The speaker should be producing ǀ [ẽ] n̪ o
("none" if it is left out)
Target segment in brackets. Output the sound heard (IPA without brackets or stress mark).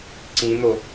ĩ